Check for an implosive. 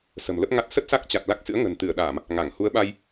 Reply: present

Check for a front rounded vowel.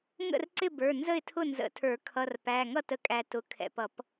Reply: absent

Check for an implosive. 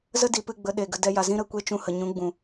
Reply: present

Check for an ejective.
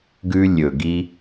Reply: absent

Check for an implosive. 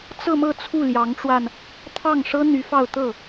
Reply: absent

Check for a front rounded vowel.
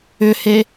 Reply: present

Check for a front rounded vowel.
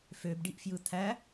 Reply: present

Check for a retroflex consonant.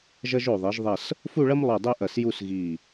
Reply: present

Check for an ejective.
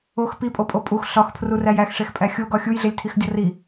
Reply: present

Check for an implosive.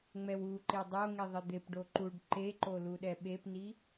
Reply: present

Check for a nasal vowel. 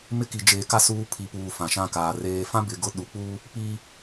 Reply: present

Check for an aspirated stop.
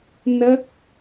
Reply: absent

